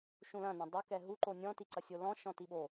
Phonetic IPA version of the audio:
ʃũlɐ̃nɐ̃ dˤokɛ ɦuǃo nʲɔ̃tiǀɐsʲo lɔ̃ ʃɔ̃tiɓo

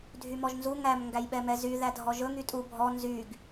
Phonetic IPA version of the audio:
dʱymɔʒnzu ŋæm ŋɡæjɓɛmɛzy ðædʱɔʒɵ ŋytʼu bʱɔ nzyɡ

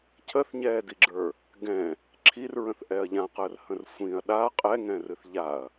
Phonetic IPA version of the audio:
cʰəθɲɛːdiɡ͡ǁə˞ | ɡɛ̃ | ǁʰirɹə̃θʔɛɐ̯ ʎãqəːrhə̃r sʷĩɐ̯ ɗa qʼɛŋɛ̃rɨθ ʎaɐ̯

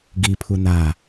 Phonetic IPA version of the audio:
ɡipʰu na

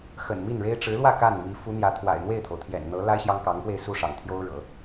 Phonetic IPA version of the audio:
xə̰˨˩nmi˥˩nɻe˥ɪ̯ ʈ͡ʂɻ̩˧˥lwä˥˧ ka˥˩nmi˧˥ fu˧˥n̪jä˧˥t̪ʰwa̰˨˩ɪ̯ n̪we˥˩ɪ̯t̪ʰo˩ʊ̯t̪ʰjɛ̰˨˩nn̪ɤ˧˥ la˥ɪ̯ ɕjɑ˥ŋkɑ˧˥ŋpwe˥˧ɪ̯ su˥˩ʂɑ̰˨˩ŋt̪ʰjo˥ʊ̯ ɻɤ̰˨˩˦

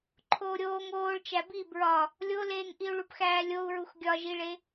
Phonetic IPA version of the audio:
ǃʰoːɾʲoːŋ oːɭt͡ʃæ bi bɹɒ | lʲoleːŋʔiu̯ ɭupxæːlʲou̯ɹux ɡʲɒʒiɭe

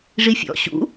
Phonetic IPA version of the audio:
ʐifʲɔ̰ ɕṵ

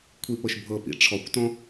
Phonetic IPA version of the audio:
kʷʰipɤʃbʱɤpḭ ʈ͡ʂʰɔkʷtɔ̃

